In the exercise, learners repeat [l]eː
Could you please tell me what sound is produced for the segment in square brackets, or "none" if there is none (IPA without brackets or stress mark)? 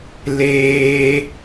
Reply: l